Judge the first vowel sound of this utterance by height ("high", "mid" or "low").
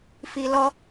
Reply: high